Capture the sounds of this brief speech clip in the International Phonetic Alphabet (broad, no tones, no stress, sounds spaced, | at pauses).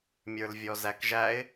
mʲ ə˞ l vʲ ɔ z æ k ʒ æ ɪ̯